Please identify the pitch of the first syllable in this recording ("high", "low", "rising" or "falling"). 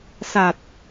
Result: low